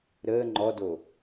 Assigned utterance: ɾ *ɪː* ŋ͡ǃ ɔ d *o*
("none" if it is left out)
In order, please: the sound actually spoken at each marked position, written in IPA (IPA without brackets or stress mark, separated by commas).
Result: əː, o